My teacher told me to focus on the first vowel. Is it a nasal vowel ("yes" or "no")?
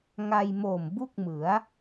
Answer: no